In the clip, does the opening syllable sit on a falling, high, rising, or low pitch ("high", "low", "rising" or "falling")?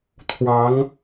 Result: rising